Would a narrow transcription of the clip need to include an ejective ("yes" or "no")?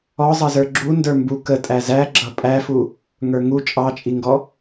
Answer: yes